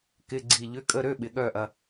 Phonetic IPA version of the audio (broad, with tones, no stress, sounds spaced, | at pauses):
k ɪ˧˥˧ ɡ͡ǀ i˦˨ ʎ ʏ˧˥˧ kʼ ə˧˥˧ ɾ ø˧˥˧ ɓ ɪ˨ ɠ œ˦˨ ʔ ɐ˨